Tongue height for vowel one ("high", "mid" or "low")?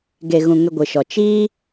mid